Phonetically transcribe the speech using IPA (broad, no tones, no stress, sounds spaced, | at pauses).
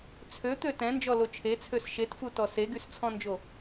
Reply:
t͡sʰ ø t̪ ø t ɛ̃ n d͡ʒ ɔ l o t͡ʃʰ e t͡sʰ ø s ʃ e t f u t ɔ s e ɡ y s t͡sʰ ɔ̃ n d͡ʒ o